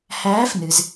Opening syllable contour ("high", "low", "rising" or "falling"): rising